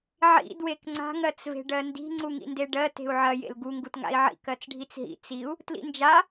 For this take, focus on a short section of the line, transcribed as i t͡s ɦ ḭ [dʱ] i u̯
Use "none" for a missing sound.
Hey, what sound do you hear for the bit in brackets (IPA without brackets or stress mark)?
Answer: t͡s